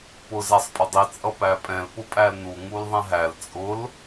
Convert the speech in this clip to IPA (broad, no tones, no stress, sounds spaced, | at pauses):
p ʊ z æ sˤ pʼ ʊ dˤ i t͡sʼ ʌ p æ pʼ ɛ̃ l p ʊ pʼ æ l n u ŋ u l ðˤ ɛ̃ ɦ æ l t͡sʼ ʊ l